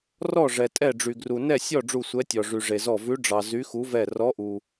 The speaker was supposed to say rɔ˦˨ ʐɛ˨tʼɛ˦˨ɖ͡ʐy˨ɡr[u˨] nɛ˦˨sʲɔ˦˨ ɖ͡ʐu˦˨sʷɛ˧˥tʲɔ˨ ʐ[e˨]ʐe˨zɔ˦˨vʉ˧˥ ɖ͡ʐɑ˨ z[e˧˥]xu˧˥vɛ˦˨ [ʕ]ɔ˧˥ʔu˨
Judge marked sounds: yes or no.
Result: yes, no, no, no

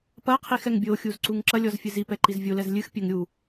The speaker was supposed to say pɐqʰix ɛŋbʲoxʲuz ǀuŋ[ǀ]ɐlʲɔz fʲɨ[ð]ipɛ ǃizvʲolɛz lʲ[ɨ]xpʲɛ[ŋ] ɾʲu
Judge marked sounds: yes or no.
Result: no, no, yes, yes

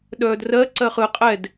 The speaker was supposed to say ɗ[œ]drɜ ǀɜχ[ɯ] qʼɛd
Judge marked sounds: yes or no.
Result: no, yes

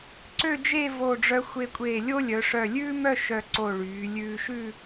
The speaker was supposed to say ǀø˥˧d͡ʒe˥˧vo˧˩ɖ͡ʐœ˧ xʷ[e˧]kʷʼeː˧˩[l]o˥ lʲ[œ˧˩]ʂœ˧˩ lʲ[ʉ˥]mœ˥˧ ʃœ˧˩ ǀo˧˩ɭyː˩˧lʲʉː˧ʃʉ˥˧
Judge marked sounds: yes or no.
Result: yes, no, no, no

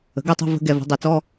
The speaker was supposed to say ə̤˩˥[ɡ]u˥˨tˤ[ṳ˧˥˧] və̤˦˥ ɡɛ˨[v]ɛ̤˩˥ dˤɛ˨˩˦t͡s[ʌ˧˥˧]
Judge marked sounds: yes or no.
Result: yes, yes, yes, no

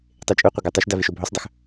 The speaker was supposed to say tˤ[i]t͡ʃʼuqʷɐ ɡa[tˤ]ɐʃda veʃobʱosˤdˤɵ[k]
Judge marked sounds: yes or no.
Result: no, yes, no

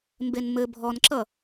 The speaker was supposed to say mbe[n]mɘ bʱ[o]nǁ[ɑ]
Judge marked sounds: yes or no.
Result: yes, no, no

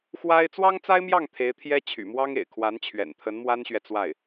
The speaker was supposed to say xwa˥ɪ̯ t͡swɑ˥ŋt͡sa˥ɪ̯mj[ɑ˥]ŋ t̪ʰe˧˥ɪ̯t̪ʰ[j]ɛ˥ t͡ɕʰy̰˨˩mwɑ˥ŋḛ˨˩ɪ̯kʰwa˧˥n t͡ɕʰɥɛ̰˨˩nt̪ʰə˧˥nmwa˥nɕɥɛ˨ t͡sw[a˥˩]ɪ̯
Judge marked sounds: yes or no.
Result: no, yes, yes

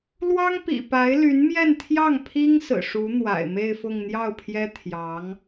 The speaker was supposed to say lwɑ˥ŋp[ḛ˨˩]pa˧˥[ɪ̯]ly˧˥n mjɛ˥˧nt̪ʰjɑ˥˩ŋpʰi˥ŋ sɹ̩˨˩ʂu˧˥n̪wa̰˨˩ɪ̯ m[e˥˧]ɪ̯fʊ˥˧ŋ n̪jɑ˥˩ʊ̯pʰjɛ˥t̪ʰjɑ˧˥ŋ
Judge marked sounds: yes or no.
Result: no, yes, yes

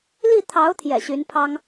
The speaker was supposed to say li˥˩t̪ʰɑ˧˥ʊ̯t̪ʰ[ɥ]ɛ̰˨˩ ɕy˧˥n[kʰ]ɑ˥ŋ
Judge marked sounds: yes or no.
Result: no, no

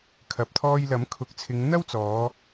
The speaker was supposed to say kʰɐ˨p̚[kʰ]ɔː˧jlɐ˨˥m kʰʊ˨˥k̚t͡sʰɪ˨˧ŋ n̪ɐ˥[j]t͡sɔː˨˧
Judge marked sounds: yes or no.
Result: no, no

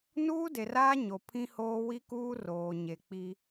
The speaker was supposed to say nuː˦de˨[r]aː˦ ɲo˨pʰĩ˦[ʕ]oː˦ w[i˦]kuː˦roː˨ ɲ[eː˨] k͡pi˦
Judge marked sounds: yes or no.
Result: yes, no, yes, no

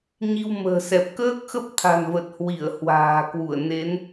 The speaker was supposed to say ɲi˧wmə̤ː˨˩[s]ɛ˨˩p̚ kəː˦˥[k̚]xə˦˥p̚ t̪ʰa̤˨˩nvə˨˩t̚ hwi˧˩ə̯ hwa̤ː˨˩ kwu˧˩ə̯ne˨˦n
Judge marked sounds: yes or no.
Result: yes, yes

